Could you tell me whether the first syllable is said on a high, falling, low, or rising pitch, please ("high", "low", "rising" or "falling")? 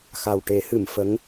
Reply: low